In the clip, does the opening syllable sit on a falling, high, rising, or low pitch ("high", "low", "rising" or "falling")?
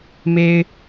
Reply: high